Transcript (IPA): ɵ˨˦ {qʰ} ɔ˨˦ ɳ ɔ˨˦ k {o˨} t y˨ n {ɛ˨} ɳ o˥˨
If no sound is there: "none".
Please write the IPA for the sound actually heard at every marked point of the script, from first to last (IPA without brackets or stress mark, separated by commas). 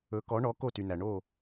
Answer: k, o˥˨, æ˨